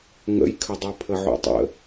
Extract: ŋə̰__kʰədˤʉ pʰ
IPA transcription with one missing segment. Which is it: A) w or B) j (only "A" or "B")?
B